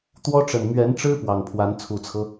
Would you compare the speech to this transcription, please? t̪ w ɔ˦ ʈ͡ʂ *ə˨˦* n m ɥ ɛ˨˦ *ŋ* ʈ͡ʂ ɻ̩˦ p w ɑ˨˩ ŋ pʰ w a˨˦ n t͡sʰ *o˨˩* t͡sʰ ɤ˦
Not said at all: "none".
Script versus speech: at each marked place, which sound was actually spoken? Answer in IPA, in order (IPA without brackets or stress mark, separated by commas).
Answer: ə˨˩, n, u˨˩